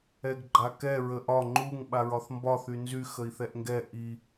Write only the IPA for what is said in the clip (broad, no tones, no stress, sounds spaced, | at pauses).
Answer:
ɛ ɡ ɡ͡ǃ a k ɛ ɹ ə ʔ ɒ ŋ͡ǃ u ŋ ɓ a ɹ ɒ θ m b ɒ θ y n z y x ə i̯ θ ɛ ʔ ŋ ɡ ɛ ʔ i